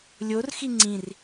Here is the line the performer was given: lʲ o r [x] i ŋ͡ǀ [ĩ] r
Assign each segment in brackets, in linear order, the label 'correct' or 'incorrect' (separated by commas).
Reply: correct, correct